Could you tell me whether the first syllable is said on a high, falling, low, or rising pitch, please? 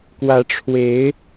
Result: rising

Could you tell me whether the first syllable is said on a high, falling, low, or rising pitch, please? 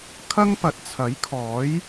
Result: high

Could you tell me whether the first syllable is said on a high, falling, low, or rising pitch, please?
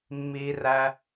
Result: high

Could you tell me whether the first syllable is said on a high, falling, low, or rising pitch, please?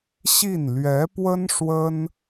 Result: falling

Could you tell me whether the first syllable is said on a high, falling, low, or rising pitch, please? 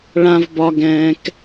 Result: low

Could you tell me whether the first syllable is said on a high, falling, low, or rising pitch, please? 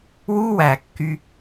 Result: high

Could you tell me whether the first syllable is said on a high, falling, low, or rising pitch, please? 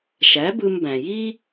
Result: rising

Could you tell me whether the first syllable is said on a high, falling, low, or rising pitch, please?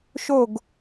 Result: falling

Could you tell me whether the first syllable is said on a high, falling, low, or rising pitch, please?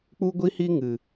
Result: high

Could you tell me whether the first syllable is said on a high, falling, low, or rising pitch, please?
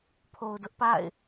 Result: low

